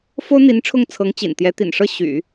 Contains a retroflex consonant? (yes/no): yes